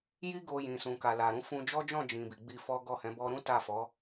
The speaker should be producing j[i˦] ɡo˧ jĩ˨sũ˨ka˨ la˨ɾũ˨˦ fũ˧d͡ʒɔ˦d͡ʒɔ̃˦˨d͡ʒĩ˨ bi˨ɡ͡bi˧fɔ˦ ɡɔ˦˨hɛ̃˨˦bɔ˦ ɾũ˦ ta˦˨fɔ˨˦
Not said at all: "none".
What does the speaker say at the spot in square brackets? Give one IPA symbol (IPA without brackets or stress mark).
i˦